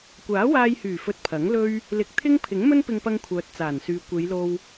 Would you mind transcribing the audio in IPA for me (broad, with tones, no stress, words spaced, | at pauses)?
kʷaː˨˥waː˧jhyː˨˩fɵ˨t̚ pʰɐ˨˥ŋlɵ˥ɥ | lɪ˨˥k̚t̪ʰɪ˥ŋ pʰɪ˨˥ŋmɵ˥npɪ˧ŋpɐ˧ŋ kʷʰœː˨t̚t͡saː˨˩nsyː˨ kʷe˨˧jlo˧w